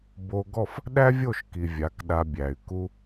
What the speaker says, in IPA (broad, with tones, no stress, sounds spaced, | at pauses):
b o˧ ɡ ɔ˦˨ f | ɗ æ˦ vʲ o˦˨ ʃ k i˨ vʲ a˨˦ k ɗ a˧ bʲ æ˨ y̯ k u˦